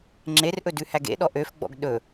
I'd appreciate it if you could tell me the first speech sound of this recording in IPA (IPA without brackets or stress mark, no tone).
ŋ͡ǁ